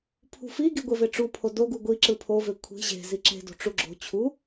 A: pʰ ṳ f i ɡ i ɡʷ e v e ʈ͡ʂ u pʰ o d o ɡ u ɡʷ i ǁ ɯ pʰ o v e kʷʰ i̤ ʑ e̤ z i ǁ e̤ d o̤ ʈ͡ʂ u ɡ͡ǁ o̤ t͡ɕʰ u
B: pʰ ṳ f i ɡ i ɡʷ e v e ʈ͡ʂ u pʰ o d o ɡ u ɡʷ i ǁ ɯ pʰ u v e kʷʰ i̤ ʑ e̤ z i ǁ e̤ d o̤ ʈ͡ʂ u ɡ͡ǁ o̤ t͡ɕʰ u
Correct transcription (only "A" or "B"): A